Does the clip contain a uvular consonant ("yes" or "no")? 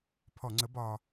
no